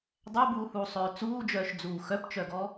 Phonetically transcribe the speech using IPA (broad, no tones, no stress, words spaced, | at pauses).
dˤæbuːhuːsˤøː t͡suːd͡ʒœːʃd͡zuː xœpt͡ʃœɡɔ